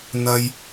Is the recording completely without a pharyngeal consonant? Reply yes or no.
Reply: yes